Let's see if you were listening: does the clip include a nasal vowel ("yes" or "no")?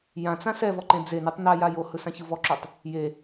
yes